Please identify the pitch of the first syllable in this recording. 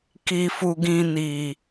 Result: low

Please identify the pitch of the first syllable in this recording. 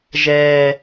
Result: high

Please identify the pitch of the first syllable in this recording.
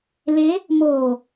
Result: rising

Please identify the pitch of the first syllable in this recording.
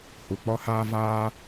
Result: low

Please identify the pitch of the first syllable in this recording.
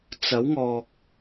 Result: rising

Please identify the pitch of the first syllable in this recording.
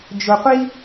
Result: low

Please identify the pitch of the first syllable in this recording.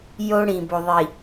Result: high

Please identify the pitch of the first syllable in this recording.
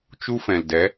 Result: high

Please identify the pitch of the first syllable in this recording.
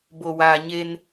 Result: low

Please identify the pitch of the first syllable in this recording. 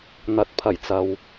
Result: rising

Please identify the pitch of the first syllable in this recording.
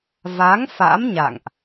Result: rising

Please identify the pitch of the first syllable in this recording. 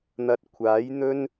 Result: low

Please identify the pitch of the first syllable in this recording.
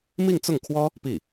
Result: falling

